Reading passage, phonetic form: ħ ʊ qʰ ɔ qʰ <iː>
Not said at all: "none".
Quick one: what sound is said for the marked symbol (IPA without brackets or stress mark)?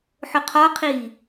iː